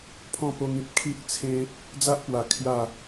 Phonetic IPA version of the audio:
pʰɔ̃˥˧po˧ŋĩ˨p̚ kʰi˦ʔt͡sʰẽ˦ | d͡za˦ʔpwa˨˩ kʰja˥˧

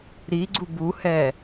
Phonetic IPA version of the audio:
ɾiɡ͡ǀu buhɛ

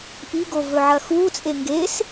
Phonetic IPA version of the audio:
ʔiɡovɵʕɐ xut͡sʼe ŋɡes

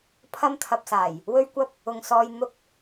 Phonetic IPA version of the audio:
pʰɐ˥m t̪ʰɐ˧p̚saː˨˩j | wɵ˥ɥkʷɐ˥p̚ | ʊ˨ŋsɔː˧j n̪ʊ˥k̚

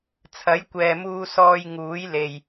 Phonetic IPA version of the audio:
t͡sʰɐ˨˥jkʷɛː˨muː˧sɔː˧j ŋuː˨˥jle˨j

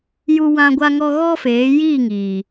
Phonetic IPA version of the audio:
ju˦ wã˦ɡʷa˦ŋɔ˦ ɣɔ˦feː˨˦ji˦˨ŋiː˨

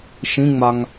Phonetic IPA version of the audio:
ʃĩŋ͡maŋ

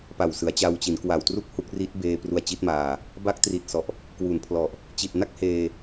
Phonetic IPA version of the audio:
pa˨˩wsɯ˩˦a̯t͡ɕa˧wt͡ɕi˩˦n kwa˨˩wtru˥˩k̚ hu˦˥k̚ri˦˥t̚beː˧ pru˧a̯t͡ɕi˦˥t̚maː˧ | ba˦˥k̚tri˨˩t̚sɔ˨˩ʔ | kwu˨˩npʰlɔ˨˩ʔ | t͡ɕi˨˩t̚na˥˩k̚heː˧

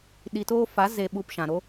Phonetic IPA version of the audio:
ɗi˨toː˧ fa˨˦ ze˨ɓu˨p ʃã˨ɾo˦

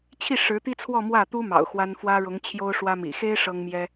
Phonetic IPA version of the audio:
t͡ɕʰi˥˩ ʂɻ̩˧˥t̪i˥t͡sʰwɔ˥˧ mwä˥˩t̪u˥ mɑ̰˨˩ʊ̯xwa˥n fwä˥ɻʊ˧˥ŋt͡ɕʰjo˥ʊ̯ ʂwä˥mḭ˨˩ xe˥ɪ̯ ʂɤ˥ŋmjɛ˥

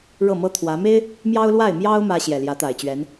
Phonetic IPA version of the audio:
ɻɤ˥˩mɤ˥t̪ʰwä˧˥ me˥ɪ̯ | mjɑ˥ʊ̯lwa˥˩ɪ̯mjɑ˥ʊ̯ mä˥ ɕjɛ˨˩ljä˧˥t̪a˨˩ɪ̯t͡ɕɥɛ˧˥n

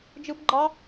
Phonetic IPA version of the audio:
d͡ʒɯ˦bɡ͡ǃɑ˦

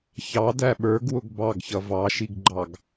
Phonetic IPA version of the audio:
çɑdæ ɓə˞ɡwʊɡ bɑɡçʌ vɑʃiɡɡ͡ǃɑɡ

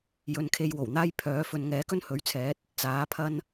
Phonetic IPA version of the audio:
jɵ˨˧nkʰe˧jwo˨˩wn̪aː˥j pʰœː˨˥ fɵ˧n ŋɛː˨˥kɵ˥nhɵ˨˥ɥt͡sʰɛː˨˥t̚ | t͡saː˨˥pʰɐ˥n

